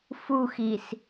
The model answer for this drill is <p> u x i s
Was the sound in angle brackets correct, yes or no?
no